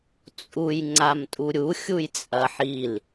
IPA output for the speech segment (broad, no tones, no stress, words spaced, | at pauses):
t͡sʼuj ŋ͡ǀamtʼuɾʲu xʲujt͡sʼɐħil